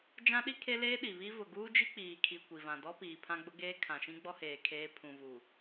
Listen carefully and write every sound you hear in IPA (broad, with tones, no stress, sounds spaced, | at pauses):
d͡ʒ ã˦ ɗ i˦ kʰ e˦ l eː˦ ɗ i˨ β i˦ v ʊ˨ ɡ uː˦ d͡ʒ i˦ k͡p iː˨ kʰ i˨ kʷ i˨ v ã˨ d ɔ˦ p iː˨ pʰ ã˦ ɡ͡b ʊ˦ ɡ eː˦ kʰ ã˨ ʃ ĩ˦ ɡ͡b ɔ˦ h eː˨ kʰ eː˦ pʰ ũ˨ v u˨